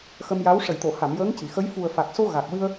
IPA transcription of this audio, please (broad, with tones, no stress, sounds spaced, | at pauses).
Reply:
x ə˧ m j a˧˥ w ʂ ə˨˩˨ j t̪ o˨˩˨ h a˨˩˨ m j əː˧˥ ŋ c i˨˩˨ x ə˧˥ j f u˨˩ ə̯ f a˨˩ k̚ s o˧ ɣ a˨˩ k̚ w ɨ˧ ə̯